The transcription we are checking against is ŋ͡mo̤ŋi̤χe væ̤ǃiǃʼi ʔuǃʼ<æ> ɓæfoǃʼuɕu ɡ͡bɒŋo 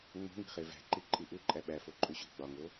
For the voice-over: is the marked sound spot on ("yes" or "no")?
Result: yes